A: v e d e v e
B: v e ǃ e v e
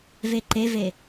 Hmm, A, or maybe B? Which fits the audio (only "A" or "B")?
B